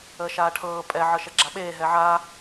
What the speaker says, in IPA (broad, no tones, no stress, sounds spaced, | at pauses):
əː ʃ aː ʈʰ ɤː pʼ ɛ ʕ ɤ ʃ ɛ ɡ͡ǁ a ɓ eː ɦ ɛ ʕ a